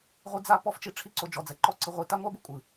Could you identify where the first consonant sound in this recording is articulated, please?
uvular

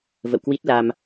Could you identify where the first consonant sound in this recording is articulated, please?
labial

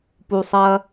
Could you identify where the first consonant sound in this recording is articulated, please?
labial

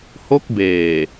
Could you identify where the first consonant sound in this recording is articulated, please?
glottal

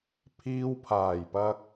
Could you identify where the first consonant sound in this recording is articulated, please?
labial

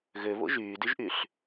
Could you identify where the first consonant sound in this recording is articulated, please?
velar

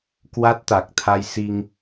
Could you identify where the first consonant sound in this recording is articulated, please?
velar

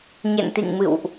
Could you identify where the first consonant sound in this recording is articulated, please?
palatal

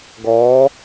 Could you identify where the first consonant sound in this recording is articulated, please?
velar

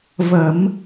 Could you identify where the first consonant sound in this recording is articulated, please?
labial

